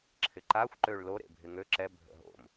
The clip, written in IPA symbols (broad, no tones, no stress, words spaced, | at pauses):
ǁʰɪǃaxʷ ǃøɭlo ɾḛbʱɪŋø ǁɛ bʱə̰ɦo̰m